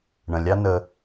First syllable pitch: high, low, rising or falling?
low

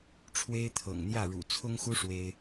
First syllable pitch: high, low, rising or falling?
high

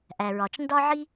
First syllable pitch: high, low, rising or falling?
low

